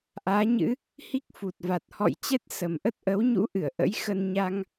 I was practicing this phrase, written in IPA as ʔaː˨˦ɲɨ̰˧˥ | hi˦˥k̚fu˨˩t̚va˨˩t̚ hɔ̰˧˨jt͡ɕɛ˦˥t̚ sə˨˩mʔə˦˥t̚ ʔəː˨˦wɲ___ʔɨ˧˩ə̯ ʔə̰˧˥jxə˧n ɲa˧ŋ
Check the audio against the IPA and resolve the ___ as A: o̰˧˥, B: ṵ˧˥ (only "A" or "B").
B